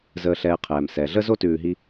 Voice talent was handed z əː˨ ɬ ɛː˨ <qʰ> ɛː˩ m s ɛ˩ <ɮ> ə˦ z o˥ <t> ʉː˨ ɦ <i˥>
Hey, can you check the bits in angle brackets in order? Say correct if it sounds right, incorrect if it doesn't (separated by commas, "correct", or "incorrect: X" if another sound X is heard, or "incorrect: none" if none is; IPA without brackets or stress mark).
correct, correct, correct, incorrect: i˦